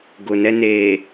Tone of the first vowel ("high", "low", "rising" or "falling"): low